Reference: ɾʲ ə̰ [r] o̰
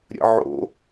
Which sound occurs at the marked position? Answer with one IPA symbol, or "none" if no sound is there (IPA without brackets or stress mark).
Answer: ʕ